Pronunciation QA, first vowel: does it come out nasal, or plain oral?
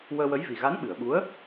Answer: oral